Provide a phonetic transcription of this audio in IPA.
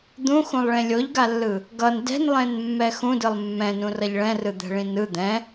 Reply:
d̪ ũ x ũ lˠ ɭ ẽ lʲ o ʎ ɡ a lː ɯ | ɡ ʌ n d ɛ̤ n lˠ ẽ n mː ɛ x ũ d ɯ lˠ mː ɛ̃ n ũ r ʌ ʎ ɭ ɛ̃ r ɯ d̪ ɛ̤ ɭ ĩ n ɯ d̪ ɛ̃

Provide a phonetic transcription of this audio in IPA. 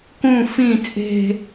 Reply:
k ũ f ĩ t͡sʼ e̤

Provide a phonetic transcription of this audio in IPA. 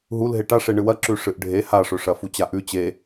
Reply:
ɦ u l ɦ e ʈ a ʂ e ɳ ɨ w ɐ ǁ ʉ ʂ ɨ ʔ ɖʱ e h a ʂ ɵ ʂ ɐ f u t͡ɕ a ʔ ʉ t͡ɕ e

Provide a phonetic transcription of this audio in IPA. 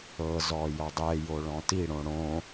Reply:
ɤ z ɔ j ɔ dˤ ɛ j o ɭ ɔ̃ t i ɽ õ ɽ õ

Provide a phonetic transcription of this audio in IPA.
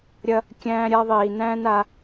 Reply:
ɾʲ ɐ˧ | kʲ æ̃ː˧ ɾʲ a˧ ðˤ iː˨ n æ̃ː˦ n a˧

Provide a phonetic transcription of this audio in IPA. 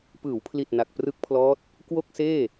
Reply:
p ɯː˩˦ w pʰ l i˨˩ t̚ n a˨˩ k̚ p r ɯ˦˥ k̚ pʰ l ɔː˦˥ t̚ | k w o˥˩ k̚ s eː˥˩

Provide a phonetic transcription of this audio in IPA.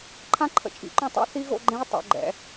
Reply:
ǃʰ ã˦˥ ǃʰ ə̰˨ t͡ʃʼ ḭ˨˩˦ ǃ õ˥˩ tˤ o̰˦˥ θ i˦˥ ɣ o̰˥˧ ɡ͡ǃ ẽ˦˥ j tˤ o̰˨˩˦ ɡ͡ǃ ɛ̰˨˩˦

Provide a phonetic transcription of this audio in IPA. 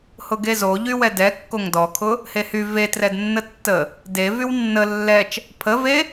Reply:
h ʊ ɡ e z o ʎ y w ɛ d ɛ kː o ŋ d ɔ kʰ ʊ | h e h y v e t r ɛ d nː ə tː ə | d e v y w nː ə lː ɛ t͡ʃ | pʰ ə v e

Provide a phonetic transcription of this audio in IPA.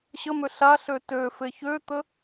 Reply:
ɕ ə m ø ɬ a ɬ ø t ø f e ç ø t̪ ə

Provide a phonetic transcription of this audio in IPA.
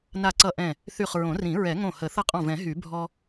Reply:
n a˧˩ ǀ ʌ˧˩ ʔ ɛ̃˧˩ | θ y˧˩ χ ɹ õ˨˩˦ r ĩ˨˩˦ ɹ ɛ˨˩˦ ŋ õ˧˩ h ə˨˩˦ θ ʌ˦ qʼ ɔ̃˧˩ v ɛ̃˨˩˦ ɦ y˨˩˦ bʱ ɔ˦

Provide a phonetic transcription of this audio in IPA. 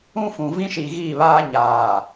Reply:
ũ˦ f ũ˨ v ĩ˦ ʃ i˨ ɣ i˦˨ β aː˦ ɲ aː˨

